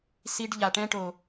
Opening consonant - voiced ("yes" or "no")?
no